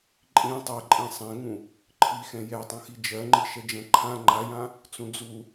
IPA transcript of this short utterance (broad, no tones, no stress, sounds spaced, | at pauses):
ǃʼ ĩ tˤ ɛ ǃʼ ĩ sˤ ɛ̃ ŋ ũ | ǃʰ i x ɛ̃ j ɛ tˤ ũ x i d͡ʒ ɜ ŋ͡ǃ i ʃ ɛ d͡ʒ ɛ̃ ǃʰ ã ŋ͡ǃ a j ã | t͡s ũ d͡z u